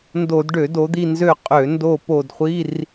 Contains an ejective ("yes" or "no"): yes